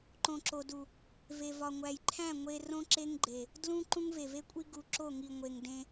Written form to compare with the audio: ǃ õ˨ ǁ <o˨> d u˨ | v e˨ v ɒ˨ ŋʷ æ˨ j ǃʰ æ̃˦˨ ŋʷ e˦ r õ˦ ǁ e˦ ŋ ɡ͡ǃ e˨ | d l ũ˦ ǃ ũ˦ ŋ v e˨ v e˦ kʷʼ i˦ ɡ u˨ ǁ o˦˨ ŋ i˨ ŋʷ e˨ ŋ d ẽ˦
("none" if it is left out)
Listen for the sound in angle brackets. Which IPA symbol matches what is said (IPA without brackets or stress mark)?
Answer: o˨